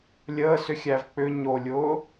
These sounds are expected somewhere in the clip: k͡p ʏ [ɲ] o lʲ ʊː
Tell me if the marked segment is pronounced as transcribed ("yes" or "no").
yes